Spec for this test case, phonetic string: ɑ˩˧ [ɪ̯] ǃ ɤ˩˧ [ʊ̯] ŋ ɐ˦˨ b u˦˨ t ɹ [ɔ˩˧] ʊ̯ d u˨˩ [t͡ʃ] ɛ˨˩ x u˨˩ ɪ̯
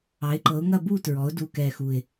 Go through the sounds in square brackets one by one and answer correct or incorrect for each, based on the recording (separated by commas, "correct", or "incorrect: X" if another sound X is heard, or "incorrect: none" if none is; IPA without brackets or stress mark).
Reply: correct, correct, correct, incorrect: k